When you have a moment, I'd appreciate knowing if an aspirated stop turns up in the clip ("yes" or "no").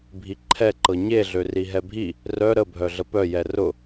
yes